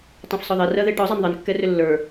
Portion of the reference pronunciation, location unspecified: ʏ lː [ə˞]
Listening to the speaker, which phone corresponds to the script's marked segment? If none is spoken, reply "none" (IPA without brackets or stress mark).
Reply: ə˞